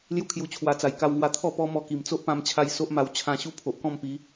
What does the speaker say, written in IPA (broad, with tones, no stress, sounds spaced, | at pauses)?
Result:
l j u˥˧ kʰ j u˧ t͡ɕʰ w a˧ t͡s a˧ j k a˧ w ŋ w a˧ t̪ʰ ɔ˥˧ p ɔ˦ m ɔ˧ k i˨˩ m t͡s o˦ ʔ p ã˧ m t͡ɕʰ a˧ j s o˦ ʔ m a˧ w t͡ɕʰ ã˧ ɕ u˦ pʰ o˨ ʔ k ɔ̃˥˧ m p i˨˦